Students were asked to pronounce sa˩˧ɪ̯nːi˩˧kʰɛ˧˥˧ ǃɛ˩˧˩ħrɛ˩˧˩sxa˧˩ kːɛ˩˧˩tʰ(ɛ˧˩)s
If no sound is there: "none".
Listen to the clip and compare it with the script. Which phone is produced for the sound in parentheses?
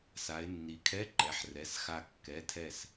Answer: ɛ˧˩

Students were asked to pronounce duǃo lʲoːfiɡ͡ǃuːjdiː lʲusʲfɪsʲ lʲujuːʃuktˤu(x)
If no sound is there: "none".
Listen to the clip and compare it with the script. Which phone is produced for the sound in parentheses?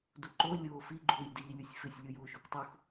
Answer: x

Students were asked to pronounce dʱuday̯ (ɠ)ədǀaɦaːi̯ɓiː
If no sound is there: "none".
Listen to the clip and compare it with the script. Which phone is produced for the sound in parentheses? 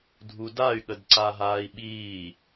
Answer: ɠ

